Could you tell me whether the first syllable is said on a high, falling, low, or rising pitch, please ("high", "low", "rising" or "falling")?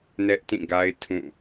high